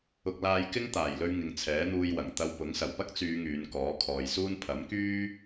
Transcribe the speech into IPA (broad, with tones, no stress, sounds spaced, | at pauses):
ʊ˧ k̚ l aː˧ j k ɪ˥ ŋ t̪ aː˨˩ j l ɵ˧ ɥ ŋ ɪ˨ ŋ t͡sʰ ɛː˨˥ n̪ uː˧ j w ɐ˨˩ ŋ t̪ ɐ˧ w p ʊ˨˥ ŋ s ɐ˨˩ w p ɐ˥ k̚ t͡s yː˨˧ ŋ yː˨˧ n k ɔː˨˥ kʰ ɔː˨ j s uː˥ n pʰ ɐ˨˥ m k yː˥